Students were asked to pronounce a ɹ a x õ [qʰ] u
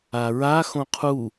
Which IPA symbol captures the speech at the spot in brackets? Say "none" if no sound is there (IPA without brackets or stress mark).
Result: qʰ